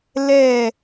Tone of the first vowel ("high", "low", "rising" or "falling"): falling